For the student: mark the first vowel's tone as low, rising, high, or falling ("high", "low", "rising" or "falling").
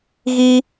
high